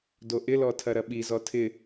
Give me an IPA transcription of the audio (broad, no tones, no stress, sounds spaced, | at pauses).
d o ʔ ɪ l ɔ tʰ ɐ ɾ ɐ ɓ i z ɔ tʰ ɪ